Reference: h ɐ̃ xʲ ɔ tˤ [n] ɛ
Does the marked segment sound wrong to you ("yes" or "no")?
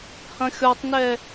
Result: no